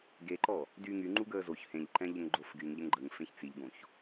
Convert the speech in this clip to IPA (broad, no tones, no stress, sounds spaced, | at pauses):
ɡ e ǃ ɔ | d yː ŋ y ŋ͡ǃ u ɡ əː z o ç h ẽ ʎ ǃ ɛ̃ ʎ ə ŋ ɡ͡ǃ o f ɡ y ŋ ʎ ə ŋ ɡ͡ǃ ə ŋ f ẽ ç t͡s i ʎ ɡ õ ç